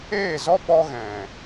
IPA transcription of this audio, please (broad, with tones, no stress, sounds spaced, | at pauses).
eː˦˨ z ɔ˦ ɓ ɔ˦ ɣ ɛ̃˨